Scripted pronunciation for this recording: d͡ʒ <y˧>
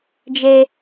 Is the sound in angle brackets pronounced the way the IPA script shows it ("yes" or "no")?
no